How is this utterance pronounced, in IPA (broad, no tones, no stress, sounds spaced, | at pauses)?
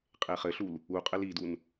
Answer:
qʼ e χ ɘ ɬ u l | u qʼ ɘ l i d u n